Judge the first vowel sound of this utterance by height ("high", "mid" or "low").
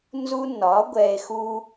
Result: high